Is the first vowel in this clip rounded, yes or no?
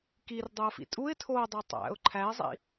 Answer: no